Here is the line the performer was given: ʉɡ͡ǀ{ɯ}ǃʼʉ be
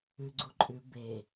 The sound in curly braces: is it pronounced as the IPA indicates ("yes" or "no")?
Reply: no